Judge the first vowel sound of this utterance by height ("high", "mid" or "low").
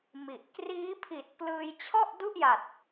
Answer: high